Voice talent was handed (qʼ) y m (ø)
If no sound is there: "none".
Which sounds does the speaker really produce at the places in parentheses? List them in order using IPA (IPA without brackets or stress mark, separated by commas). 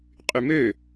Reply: qʼ, ø